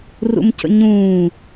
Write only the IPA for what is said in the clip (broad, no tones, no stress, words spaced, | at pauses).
rṵmcə̰ɲũː